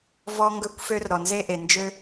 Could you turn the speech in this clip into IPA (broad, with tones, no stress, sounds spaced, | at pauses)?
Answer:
v ɔ˧ ŋ ɡ ɵ˧˥ kʷ f ø˧ r ɾ ɔ˩ n z e˥ ʔ e˩ n d͡ʒ ø˥